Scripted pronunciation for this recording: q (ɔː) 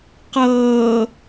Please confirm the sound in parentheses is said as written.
no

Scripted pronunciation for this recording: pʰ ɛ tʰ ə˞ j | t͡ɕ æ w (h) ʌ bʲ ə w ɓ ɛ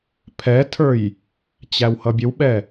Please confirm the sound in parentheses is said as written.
yes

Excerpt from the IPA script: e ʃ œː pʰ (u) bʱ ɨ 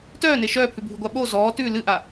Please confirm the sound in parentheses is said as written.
no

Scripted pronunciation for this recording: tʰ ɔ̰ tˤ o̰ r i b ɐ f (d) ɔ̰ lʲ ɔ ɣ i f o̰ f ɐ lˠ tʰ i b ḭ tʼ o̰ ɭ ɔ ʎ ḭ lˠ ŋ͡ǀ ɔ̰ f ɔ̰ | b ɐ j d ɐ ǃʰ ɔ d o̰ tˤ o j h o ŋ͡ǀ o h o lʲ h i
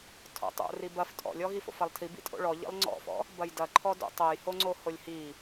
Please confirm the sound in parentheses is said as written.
no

